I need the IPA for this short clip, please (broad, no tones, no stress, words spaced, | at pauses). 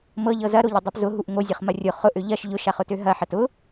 mɤʎɤ zɐɾoʎɐdˤɤp zʊɦuʔ ŋozʲɐχmɐ rʲʊ χʊʔø ʎɐʃ ʎʊʃaχʊtø ɦɐħɐt ʊ